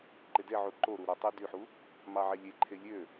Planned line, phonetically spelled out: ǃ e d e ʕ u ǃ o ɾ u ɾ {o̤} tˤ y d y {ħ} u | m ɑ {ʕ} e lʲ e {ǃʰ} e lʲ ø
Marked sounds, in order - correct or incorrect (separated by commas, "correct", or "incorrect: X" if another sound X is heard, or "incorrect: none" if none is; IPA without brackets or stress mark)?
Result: incorrect: o, correct, correct, correct